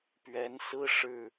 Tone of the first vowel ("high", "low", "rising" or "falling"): rising